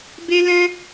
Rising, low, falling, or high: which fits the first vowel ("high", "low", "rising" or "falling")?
high